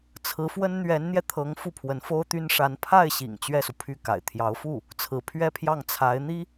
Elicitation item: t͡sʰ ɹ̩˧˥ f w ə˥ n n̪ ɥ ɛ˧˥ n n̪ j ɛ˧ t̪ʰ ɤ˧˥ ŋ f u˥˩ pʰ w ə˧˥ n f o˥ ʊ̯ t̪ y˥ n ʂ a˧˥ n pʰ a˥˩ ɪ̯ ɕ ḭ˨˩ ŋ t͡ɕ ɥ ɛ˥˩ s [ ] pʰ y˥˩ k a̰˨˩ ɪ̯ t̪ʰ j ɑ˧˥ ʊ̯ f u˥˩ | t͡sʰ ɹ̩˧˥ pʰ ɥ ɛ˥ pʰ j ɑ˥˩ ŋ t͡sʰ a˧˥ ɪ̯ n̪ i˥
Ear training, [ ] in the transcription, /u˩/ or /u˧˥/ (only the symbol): u˩